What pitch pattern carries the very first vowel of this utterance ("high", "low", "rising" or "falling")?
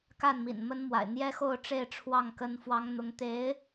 falling